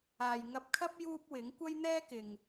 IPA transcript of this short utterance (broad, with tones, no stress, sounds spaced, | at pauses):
aː˨ j ŋ ɐ˧ p̚ kʰ ɐ˥ p̚ j uː˥ p̚ w ɪ˨˥ ŋ kʷ ɐ˥ j n̪ ɛː˥ k ɪ˨ ŋ